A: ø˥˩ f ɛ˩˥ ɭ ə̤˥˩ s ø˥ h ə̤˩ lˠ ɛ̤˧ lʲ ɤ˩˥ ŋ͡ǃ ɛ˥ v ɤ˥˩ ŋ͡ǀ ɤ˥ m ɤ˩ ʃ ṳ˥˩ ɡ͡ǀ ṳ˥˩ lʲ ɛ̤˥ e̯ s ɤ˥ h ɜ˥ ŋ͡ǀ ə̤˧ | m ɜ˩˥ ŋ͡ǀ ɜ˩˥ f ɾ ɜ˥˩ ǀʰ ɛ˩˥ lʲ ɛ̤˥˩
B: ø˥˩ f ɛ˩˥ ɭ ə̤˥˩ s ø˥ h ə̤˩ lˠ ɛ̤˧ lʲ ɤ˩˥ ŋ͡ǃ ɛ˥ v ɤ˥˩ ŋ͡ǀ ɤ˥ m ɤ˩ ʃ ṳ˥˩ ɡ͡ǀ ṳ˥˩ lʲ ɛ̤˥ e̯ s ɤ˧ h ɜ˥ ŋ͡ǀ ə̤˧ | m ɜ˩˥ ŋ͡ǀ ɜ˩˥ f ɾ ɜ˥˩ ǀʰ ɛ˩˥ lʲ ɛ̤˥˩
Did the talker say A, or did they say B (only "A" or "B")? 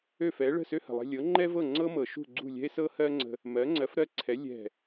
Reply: A